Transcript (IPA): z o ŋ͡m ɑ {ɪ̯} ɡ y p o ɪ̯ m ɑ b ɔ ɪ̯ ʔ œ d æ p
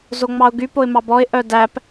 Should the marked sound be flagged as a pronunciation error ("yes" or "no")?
yes